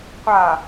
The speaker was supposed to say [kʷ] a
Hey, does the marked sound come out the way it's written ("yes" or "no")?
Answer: no